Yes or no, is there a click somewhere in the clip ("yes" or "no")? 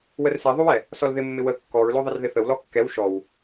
no